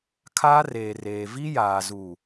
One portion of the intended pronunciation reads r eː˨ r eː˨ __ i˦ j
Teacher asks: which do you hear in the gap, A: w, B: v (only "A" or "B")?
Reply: B